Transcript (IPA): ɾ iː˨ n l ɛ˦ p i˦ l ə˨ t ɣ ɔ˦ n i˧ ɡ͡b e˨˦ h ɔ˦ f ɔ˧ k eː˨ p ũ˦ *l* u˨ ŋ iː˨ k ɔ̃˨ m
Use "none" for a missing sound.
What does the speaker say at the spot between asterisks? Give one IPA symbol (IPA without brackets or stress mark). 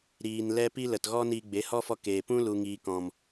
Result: l